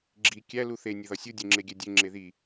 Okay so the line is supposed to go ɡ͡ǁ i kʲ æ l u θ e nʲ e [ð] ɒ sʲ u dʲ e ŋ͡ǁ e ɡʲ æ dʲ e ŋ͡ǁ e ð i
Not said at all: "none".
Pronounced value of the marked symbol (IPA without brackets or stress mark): ð